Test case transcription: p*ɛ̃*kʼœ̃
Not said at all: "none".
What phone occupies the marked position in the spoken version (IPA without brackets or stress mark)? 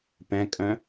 ɛ̃